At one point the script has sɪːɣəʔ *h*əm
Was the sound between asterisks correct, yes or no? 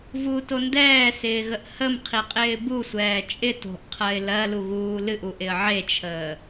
yes